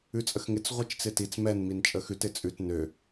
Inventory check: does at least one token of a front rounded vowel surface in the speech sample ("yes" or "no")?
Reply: yes